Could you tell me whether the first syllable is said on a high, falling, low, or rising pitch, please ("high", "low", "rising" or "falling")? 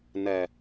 low